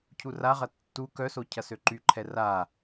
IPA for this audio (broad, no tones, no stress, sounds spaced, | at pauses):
cʰ u r a ʁ ɐ tː u k œ s o cʰ ɐ s ø ǃ y ǃʰ ɛ r a